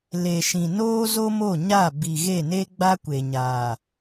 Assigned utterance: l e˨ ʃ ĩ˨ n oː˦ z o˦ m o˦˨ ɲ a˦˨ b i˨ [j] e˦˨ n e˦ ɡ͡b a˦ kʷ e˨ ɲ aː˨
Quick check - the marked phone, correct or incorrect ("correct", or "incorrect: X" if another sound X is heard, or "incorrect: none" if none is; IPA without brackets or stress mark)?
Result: incorrect: ɣ